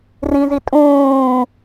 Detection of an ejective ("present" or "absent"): present